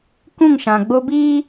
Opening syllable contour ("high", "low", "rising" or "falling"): falling